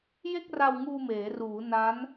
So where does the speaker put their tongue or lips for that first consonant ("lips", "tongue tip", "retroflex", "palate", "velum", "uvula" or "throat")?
palate